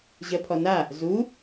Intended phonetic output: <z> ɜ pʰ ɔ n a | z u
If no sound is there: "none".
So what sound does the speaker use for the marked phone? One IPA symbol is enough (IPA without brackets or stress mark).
ʑ